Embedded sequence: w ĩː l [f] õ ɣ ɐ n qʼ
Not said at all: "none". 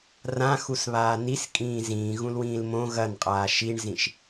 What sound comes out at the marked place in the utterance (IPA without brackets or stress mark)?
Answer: m